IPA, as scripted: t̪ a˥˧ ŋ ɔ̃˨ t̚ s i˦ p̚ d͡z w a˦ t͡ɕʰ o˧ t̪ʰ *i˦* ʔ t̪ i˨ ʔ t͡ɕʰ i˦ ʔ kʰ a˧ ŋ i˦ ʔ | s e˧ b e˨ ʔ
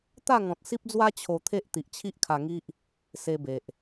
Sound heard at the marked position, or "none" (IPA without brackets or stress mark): e˦